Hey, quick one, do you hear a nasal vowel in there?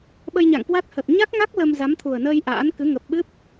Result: no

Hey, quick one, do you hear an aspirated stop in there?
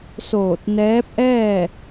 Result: no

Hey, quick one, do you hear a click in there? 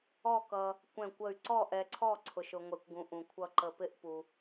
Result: yes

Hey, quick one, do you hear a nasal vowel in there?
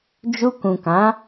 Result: yes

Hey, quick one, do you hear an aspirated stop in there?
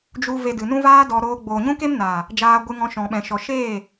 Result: no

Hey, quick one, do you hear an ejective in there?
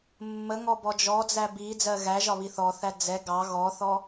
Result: no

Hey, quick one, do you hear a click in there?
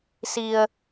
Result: no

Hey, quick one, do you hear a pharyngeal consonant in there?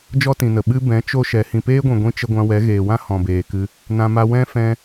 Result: no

